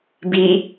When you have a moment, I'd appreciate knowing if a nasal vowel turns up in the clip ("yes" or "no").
no